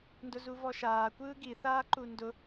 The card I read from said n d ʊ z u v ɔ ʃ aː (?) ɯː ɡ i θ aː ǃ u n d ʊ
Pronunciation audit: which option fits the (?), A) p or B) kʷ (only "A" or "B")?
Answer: B